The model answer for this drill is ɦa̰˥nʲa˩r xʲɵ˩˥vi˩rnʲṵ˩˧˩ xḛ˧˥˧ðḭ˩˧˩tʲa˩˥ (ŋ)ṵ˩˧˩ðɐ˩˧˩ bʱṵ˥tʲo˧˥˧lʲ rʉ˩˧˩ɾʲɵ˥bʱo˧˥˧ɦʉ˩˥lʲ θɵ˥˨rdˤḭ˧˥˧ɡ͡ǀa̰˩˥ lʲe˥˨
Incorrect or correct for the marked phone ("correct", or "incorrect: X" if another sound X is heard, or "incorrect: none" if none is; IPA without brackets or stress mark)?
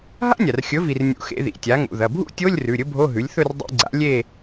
correct